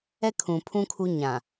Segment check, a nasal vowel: present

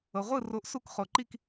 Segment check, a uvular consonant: present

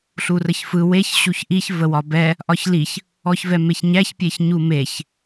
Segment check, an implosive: absent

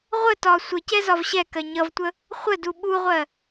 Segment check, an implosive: present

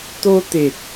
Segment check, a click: absent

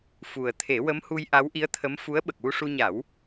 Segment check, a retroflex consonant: present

